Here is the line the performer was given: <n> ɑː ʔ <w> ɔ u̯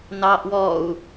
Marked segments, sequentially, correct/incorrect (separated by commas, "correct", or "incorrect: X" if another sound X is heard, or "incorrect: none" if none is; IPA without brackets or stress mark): correct, correct